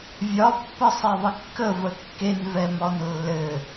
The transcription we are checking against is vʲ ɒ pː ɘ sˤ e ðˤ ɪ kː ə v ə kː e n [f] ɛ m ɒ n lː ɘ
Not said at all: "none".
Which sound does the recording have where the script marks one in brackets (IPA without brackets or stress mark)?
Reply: v